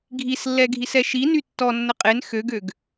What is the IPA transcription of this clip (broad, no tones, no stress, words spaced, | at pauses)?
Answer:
ɡʱislːɛ ɡʱisɛʃiny tːɔnːə qʼen xøɡøɡ